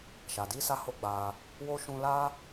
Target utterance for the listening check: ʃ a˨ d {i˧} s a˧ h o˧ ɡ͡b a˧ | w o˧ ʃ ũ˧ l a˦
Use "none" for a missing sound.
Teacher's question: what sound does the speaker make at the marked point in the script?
i˧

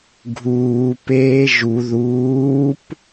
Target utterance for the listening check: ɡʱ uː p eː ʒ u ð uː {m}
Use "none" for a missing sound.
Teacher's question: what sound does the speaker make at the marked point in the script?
p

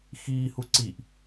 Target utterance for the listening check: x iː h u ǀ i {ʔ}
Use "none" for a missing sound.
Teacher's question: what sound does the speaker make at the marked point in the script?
ʔ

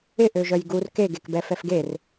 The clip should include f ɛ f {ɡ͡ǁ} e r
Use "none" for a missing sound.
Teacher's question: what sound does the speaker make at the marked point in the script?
ɡ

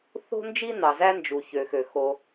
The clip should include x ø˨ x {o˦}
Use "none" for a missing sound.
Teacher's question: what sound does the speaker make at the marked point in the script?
o˦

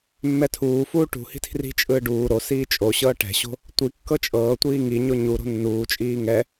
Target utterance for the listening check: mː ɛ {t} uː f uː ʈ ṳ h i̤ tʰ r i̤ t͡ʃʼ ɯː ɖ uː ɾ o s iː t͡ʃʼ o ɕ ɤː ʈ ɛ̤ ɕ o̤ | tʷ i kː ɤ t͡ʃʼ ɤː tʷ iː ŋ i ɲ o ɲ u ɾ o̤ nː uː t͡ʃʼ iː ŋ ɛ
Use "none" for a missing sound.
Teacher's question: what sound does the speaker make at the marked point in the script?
tʰ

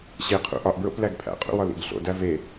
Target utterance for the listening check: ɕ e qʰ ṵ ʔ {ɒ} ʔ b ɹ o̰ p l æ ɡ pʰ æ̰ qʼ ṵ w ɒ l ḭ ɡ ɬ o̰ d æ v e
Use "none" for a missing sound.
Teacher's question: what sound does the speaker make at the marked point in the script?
ɒ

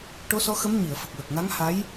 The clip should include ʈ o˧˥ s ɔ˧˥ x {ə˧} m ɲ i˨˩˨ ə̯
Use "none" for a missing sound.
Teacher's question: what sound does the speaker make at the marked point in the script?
ə˧˥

